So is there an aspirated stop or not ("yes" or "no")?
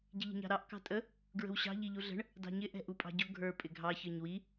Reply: no